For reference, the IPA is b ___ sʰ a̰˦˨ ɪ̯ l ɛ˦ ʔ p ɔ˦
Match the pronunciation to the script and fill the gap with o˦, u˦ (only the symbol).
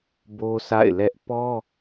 o˦